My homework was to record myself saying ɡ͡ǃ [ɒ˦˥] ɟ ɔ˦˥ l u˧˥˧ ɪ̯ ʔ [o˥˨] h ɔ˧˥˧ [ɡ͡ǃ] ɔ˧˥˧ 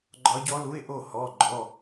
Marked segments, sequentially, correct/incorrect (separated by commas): correct, correct, correct